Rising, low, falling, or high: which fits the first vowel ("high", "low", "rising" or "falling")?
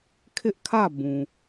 high